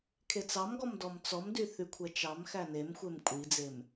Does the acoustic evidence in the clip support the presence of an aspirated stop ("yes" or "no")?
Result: yes